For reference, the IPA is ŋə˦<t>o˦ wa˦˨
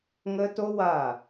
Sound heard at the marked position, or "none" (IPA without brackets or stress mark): t